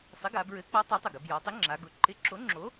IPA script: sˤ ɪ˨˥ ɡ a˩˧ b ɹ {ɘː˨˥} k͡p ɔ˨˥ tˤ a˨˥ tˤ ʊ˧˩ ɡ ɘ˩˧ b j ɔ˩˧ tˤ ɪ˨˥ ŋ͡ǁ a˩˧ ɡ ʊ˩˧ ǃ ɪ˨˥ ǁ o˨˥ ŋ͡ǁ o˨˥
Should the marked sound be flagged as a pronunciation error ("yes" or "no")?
yes